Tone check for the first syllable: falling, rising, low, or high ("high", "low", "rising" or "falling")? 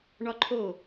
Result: high